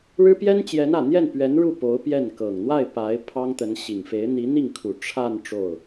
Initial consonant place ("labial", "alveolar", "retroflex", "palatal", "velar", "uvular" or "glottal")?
retroflex